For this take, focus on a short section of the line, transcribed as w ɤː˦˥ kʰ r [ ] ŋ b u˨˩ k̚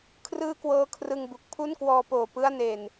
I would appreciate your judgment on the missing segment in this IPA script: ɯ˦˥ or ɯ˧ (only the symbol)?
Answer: ɯ˧